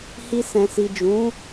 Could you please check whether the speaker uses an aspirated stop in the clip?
no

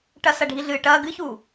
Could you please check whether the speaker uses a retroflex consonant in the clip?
yes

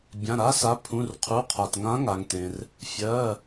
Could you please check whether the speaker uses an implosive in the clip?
no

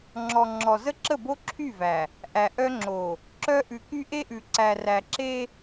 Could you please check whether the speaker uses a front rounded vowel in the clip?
yes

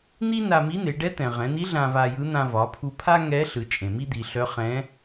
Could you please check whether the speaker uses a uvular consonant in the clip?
yes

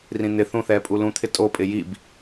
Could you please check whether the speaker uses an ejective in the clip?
yes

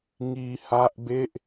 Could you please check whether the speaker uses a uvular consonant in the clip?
no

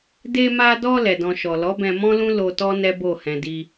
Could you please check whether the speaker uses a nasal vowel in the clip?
yes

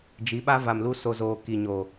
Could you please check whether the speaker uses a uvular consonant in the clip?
no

